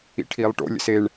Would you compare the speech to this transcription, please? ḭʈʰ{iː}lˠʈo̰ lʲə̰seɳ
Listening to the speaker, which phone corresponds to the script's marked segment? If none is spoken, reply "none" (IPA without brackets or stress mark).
iː